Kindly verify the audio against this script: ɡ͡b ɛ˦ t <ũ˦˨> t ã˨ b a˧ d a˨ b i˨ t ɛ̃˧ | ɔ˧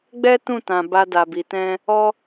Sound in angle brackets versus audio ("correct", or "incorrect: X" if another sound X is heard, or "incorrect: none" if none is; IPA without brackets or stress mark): correct